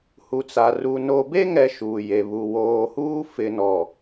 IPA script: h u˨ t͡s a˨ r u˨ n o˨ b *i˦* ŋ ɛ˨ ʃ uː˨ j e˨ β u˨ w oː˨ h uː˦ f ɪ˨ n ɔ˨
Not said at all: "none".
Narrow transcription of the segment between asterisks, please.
e˦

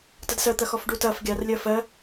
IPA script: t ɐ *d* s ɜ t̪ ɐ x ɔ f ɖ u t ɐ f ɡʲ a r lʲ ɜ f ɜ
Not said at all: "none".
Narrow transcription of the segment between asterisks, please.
d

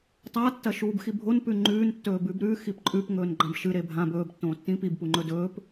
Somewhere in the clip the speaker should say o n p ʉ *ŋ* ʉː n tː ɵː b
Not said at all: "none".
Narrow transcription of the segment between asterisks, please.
ŋ͡ǃ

